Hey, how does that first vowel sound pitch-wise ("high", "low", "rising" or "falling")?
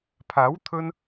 rising